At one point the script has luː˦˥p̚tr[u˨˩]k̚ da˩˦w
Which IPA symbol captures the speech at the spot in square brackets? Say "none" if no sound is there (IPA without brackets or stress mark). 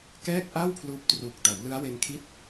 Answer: u˨˩